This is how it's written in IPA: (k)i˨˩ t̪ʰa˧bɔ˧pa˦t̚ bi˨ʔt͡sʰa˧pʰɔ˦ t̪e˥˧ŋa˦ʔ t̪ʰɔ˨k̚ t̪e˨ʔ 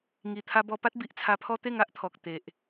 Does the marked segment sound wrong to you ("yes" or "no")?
yes